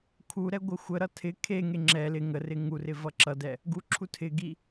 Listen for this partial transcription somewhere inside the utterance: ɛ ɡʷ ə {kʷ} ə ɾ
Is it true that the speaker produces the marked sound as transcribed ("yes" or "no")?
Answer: no